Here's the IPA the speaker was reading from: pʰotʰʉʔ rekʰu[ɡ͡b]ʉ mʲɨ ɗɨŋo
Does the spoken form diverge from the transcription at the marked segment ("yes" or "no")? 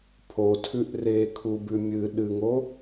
yes